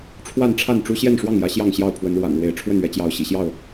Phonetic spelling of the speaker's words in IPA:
ʈ͡ʂʰ w a˥˨ n ʈ͡ʂʰ a˥˨ n ʈ͡ʂ u˦ ɕ j ɛ˥˨ n ʂ w ɑ˥˨ ŋ j ä˨˦ ɕ j ɑ˥˨ ŋ ɕ j ɑ˥˨ ʊ̯ pʰ w ə˨˦ n ɻ w a̰˨˩ n ɻ w e˨˦ ɪ̯ ʈ͡ʂʰ w ə˥˨ n ɥ ɛ˨˦ t͡ɕ j ɑ˨˦ ʊ̯ ɕ ḭ˨˩ ɕ j ɑ˥˨ ʊ̯

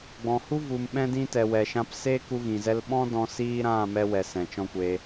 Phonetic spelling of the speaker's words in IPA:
ɡ͡b ɔ̃˨ h u˦ v u˧ m ɓ ɛ̃˧ d ĩ˧ t ɛ˨ w ɛ˨ ʃ ã˧ p s eː˦ k u˧ ɣ ĩ˨ z ɛ˧ l ɓ ɔ̃˦ d ɔ̃˧ s iː˦ ɾ ã˦˨ m ɛ˧ w ɛ˨ s ɛ̃˨ t͡ʃ ɔ̃˦ kʷ eː˧

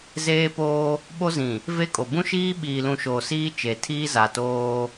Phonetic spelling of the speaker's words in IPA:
z eː˦ p oː˦ | ɓ o˦ z ĩ˨ | v e˦ kʼ o˨ b ũ˦ ʃ iː˦ ɓ iː˨ l ũ˨ ʃ oː˨ s iː˦ t͡ʃ e˨ tʰ iː˦ z a˨ t oː˦

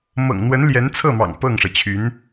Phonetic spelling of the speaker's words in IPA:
m ɤ̰˨˩ ŋ n̪ w ə˧˥ n l j ɛ˧˥ n t͡sʰ ɤ˥˩ m ɑ̰˨˩ ŋ p ɤ˥˩ ŋ ʂ ɤ˩ t͡ɕʰ y˧˥ n

